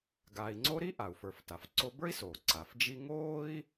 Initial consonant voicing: voiced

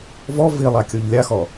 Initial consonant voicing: voiced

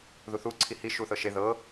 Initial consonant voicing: voiced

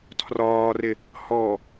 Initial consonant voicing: voiceless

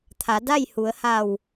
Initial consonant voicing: voiceless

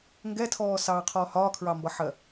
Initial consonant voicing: voiced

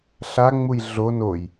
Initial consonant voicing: voiceless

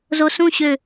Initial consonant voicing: voiced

